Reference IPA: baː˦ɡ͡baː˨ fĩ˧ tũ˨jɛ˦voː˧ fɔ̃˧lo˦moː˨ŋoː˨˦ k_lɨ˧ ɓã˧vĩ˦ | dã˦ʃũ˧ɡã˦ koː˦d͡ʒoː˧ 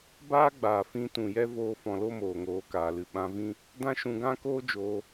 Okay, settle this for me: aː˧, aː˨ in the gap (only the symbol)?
aː˨